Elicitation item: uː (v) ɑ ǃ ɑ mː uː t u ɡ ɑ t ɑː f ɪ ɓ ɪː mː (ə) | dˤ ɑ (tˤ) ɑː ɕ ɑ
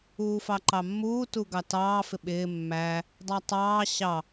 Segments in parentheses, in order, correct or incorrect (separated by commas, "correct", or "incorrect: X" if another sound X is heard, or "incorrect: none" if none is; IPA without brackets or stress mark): incorrect: f, incorrect: æ, correct